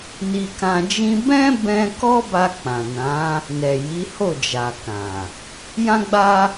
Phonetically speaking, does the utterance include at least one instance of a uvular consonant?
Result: no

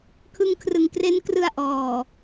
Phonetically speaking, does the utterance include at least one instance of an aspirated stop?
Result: yes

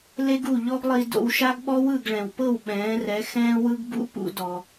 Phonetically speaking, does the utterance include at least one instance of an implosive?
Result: yes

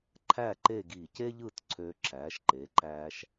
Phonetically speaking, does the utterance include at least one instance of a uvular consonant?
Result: no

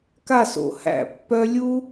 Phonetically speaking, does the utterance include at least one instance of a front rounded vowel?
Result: yes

